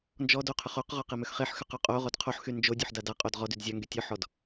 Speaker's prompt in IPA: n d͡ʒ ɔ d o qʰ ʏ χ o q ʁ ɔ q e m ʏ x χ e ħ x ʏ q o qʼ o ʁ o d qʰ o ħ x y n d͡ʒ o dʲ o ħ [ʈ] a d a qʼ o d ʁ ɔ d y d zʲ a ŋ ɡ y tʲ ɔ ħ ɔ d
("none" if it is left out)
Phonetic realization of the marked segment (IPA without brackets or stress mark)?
d